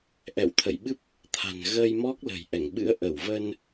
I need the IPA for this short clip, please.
ʔ ɛ̰˧˨ w t̪ʰ ə̰˧˨ j ɓ ɨ˦˥ p̚ | t̪ʰ a̤˨˩ n ɣ ə˧ j m ɔ˦˥ k̚ l ə̤˨˩ j ʔ ɛ˧˩ ŋ ɓ ɨ̰˧˥ ə̯ ʔ ə˧˩ w v ə˧ n

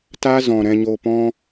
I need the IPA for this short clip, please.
t a˦ z ɔ̃˨ ɾ ɛ̃˧ ɲ o˧ p ɔ̃˦

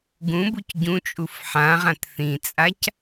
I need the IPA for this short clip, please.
ɡ ũ b u c ɟ ũ t͡ʃʼ u f ħ ã ʁ ã t θ ĩ t͡sʼ a c

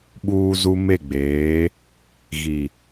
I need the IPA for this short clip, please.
ɓ uː˦ z u˦ m e˦˨ ɡ͡b eː˨˦ | ɣ i˨

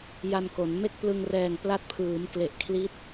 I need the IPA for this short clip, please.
j a˧ n k o˩˦ n m e˥˩ k̚ p l ɯ˧ ŋ r ɛː˨˩ ŋ p l a˦˥ t̚ pʰ ɯː˩˦ m k l e˨˩ ʔ kʰ l i˦˥ t̚

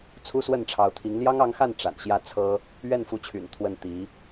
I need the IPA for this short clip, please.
t͡sʰ u˥ s w ə˥˩ n ʈ͡ʂʰ ɑ˧˥ ʊ̯ t̪ʰ i˧˥ ŋ l j ɑ˥ ŋ ɑ˧˥ ŋ x a˥˩ n ʈ͡ʂ a̰˨˩ n ɕ j ä˥˩ t͡sʰ ɤ˥ | ɥ ɛ˥˩ n f u˧˥ t͡ɕʰ y̰˨˩ n t̪ʰ w ə˥˩ n t̪ i˧˥

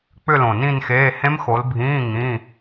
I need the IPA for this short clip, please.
k͡p ʏ˥˧ l õ˨˩ n ĩ˥˧ n x eː˧˥˧ h ẽ˦˥ m x o˨˦ l bʱ ĩː˧˥˧ ŋ ĩ˧˥˧

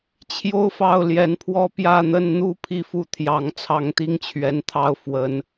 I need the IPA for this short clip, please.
t͡ɕʰ j o˥ ʊ̯ f ɑ˥˩ ʊ̯ l j ɛ˧˥ n pʰ w ɔ˥˧ p j ä˥˧ n̪ ə˥˧ n n̪ u˥˧ pʰ i˥˧ f u˥˩ t̪ʰ j ɑ˧˥ ŋ t͡sʰ ɑ˥˩ ŋ t̪ i˥ ŋ t͡ɕʰ ɥ ɛ˧˥ n t̪ʰ ɑ˥˩ ʊ̯ f w ə˧˥ n

